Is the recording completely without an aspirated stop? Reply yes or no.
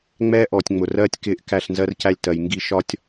yes